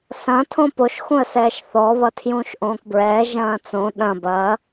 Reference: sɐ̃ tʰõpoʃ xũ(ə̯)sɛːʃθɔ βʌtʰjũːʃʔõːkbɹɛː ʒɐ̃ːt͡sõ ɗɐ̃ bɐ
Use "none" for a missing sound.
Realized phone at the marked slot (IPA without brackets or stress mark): ə̯